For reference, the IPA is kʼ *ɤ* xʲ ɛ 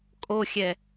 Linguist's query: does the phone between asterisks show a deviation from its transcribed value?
yes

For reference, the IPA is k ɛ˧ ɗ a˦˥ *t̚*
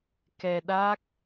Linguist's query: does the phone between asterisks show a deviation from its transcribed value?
yes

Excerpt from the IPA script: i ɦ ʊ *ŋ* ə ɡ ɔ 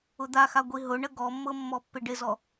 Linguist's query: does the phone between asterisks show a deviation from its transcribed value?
yes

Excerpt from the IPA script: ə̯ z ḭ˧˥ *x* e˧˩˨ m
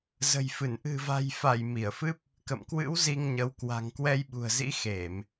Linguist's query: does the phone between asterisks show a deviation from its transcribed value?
no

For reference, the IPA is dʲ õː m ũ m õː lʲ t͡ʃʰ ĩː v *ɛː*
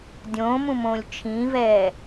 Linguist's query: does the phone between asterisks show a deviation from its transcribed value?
no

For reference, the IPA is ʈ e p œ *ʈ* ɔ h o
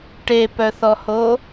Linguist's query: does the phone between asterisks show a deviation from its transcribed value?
yes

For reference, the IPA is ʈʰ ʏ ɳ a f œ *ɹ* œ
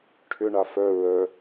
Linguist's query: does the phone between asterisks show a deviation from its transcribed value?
no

